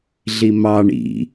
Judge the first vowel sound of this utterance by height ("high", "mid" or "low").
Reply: high